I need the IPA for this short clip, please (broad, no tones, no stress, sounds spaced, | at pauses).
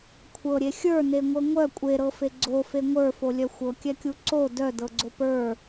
kʷʰ ɤ ɾʲ e xʲ ə˞ n e ŋʷ ɤ ŋʷ œ kʷʼ e ɾ ɤ f e ɡ͡ǀ o f e ŋʷ ə˞ f o lʲ œ xʷ ɤ kʲ ɛ kʲ u ǀ o d œ d ɤ ɡ͡ǀ o p ə˞